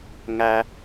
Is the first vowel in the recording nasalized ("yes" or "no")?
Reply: no